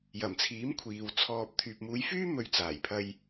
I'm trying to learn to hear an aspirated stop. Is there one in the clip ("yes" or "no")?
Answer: yes